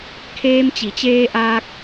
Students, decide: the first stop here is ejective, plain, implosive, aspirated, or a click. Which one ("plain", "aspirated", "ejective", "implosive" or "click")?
aspirated